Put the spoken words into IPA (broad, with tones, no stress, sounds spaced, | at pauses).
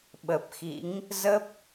ɓ ə˨˩ p̚ x ḭ˧˥ ŋ | z ə˦˥ p̚